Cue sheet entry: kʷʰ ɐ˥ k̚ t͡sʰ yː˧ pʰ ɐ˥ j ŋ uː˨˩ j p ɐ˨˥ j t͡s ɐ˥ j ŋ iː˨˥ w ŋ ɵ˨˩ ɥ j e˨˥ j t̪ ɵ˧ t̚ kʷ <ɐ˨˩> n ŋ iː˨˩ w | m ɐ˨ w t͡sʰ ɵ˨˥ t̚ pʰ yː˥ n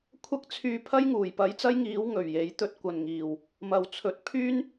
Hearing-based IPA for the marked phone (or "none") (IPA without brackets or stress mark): ɐ˨˩